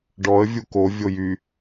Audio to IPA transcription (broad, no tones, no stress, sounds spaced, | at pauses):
ɖ ɔ ə̯ vʲ u k o vʲ o j y